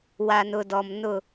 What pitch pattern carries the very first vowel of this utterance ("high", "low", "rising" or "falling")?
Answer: low